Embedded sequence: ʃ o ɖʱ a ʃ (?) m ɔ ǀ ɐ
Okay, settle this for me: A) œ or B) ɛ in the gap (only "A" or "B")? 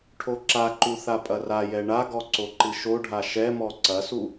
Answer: B